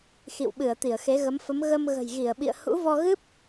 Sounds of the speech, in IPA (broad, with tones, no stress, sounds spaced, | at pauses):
x ḭ˧˨ w ɓ ɨ˧˩ ə̯ t̪ i˧˩ ə̯ x e˨˦ ɣ ə˨˦ m f ə˨˦ m ɣ ə˧ m ɣ ə̤˨˩ j ɣ i˧˩ ə̯ ɓ ḭ˧˨ ə̯ h ṵ˧˥ v ɔ˧ ɣ ɨ˦˥ p̚